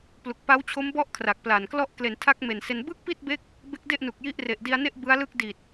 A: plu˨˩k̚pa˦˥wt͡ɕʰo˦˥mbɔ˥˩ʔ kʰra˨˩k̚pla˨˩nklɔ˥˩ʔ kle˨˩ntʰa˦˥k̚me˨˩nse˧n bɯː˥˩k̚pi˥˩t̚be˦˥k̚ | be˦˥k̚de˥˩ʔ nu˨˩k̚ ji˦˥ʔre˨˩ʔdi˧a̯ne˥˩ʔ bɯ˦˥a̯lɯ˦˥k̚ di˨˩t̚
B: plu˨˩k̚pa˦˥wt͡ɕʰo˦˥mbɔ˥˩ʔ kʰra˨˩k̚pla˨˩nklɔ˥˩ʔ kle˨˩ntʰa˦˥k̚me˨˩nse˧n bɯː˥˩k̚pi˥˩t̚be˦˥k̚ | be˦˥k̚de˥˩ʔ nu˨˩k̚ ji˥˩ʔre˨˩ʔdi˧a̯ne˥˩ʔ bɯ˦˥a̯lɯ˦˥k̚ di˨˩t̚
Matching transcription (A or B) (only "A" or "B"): A